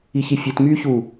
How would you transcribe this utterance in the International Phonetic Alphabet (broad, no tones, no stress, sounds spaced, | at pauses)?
i ç i fʲ ɨ t m yː ç u